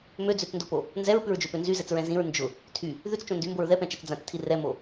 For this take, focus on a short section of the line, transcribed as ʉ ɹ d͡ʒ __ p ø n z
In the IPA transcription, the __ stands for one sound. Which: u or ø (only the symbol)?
ø